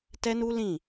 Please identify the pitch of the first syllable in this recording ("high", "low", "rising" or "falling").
high